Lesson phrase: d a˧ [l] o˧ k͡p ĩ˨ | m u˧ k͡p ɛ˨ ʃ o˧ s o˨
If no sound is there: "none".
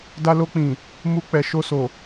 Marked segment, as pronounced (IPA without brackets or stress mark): l